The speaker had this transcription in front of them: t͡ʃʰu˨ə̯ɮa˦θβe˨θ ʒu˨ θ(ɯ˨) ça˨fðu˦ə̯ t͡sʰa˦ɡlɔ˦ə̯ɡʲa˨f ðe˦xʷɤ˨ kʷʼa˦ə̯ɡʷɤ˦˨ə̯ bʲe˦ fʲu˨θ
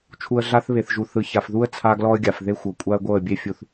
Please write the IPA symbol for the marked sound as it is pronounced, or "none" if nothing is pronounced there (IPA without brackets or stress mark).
ɯ˨